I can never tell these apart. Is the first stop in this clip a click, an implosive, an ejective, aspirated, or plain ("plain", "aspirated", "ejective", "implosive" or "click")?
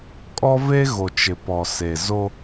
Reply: ejective